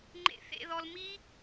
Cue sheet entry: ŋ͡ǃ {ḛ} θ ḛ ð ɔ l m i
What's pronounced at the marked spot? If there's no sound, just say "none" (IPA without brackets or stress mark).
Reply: ḛ